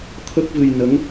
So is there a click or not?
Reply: no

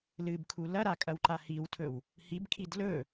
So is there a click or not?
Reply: yes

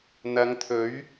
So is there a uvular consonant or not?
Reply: no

